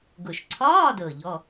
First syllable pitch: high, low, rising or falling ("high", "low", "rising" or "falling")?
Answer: low